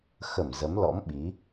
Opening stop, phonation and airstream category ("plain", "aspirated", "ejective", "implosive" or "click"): implosive